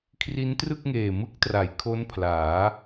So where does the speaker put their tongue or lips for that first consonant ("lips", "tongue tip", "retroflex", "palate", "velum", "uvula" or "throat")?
velum